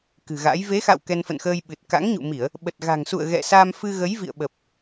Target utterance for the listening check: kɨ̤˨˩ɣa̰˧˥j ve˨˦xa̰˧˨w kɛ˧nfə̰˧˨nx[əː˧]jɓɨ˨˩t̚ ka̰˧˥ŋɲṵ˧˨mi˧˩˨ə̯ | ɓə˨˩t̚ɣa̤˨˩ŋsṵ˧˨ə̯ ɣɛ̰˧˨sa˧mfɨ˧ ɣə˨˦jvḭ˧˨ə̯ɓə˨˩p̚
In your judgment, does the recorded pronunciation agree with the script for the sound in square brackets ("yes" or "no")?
yes